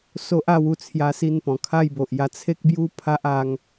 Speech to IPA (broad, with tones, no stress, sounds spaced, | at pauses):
s o˦ ʔ a˥˧ w u˦ t͡sʰ j a˦ s i˥˧ n p ɔ̃˨˩ kʰ a˥˧ j b o˨ ʔ j a˧ t͡sʰ e˦ k̚ b j u˦ pʰ a˦ ʔ a˧ ŋ